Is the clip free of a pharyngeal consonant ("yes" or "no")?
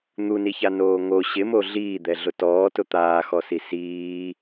yes